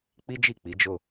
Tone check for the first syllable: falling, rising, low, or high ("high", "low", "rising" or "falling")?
high